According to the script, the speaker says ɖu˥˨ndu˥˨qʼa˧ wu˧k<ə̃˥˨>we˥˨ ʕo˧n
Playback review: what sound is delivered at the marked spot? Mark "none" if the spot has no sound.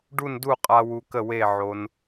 ə˥˨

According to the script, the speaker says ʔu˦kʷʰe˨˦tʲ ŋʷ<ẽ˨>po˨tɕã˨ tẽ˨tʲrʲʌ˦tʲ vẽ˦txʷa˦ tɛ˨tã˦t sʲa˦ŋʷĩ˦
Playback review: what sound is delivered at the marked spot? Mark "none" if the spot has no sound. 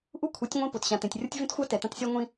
ẽ˦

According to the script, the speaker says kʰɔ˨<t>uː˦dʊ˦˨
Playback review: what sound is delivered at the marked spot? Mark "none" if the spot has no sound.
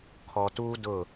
t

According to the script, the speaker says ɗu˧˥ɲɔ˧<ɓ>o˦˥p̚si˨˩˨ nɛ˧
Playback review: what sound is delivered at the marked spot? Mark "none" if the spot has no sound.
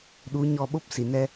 ɓ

